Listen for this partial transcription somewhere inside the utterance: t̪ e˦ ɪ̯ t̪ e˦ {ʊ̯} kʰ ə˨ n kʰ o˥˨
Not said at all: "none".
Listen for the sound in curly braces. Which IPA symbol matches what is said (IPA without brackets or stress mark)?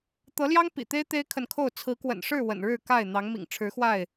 ɪ̯